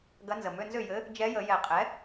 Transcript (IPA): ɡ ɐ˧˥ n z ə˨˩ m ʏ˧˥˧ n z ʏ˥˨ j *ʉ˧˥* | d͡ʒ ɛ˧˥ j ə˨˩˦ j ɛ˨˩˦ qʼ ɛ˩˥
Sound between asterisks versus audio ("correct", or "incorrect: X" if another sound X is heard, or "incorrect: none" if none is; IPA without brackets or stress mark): incorrect: ɘ˧˥